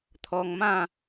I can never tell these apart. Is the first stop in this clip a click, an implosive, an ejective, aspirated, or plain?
aspirated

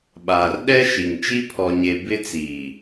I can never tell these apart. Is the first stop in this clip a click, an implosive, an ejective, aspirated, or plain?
implosive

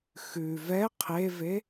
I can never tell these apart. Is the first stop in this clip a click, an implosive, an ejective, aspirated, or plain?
aspirated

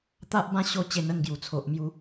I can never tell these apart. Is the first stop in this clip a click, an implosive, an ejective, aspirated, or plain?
plain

